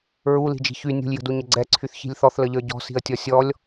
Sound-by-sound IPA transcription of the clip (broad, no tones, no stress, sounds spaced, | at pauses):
ɹ u l i̤ d͡ʒ i̤ ç y nʲ ṳ lʲ j ə̤ d u ɲ ə ɡ͡ǀ ɛ ǀʰ y θ ç i̤ lʲ θ ɔ θ l ə ʎ ə˞ ɟ ɔ̤ s i̤ ə̯ tʲ ɔ sʲ ɔ lʲ